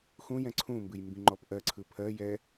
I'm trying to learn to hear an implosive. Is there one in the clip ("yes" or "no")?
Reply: no